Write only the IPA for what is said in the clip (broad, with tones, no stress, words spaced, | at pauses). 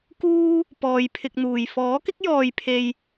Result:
kuː˧ | pɔː˧jpʰɪ˧k̚n̪uː˨j fɔː˨˥kɪ˥k̚jɔː˨jpʰe˨j